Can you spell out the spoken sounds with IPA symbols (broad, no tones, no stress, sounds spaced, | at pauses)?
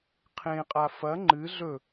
qʰ ẽ qʼ a f ɐ ŋ͡ǃ ɨ ɮ ɵ